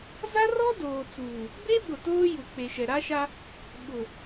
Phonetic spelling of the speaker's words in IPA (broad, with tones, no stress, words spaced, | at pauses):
za˦rɔ˦ doː˨t͡suː˨ | be˦ɓʊ˨ toː˦ju˨ k͡pe˨ʃɛ˨ɾa˦ʃa˦ | ɓʊ˨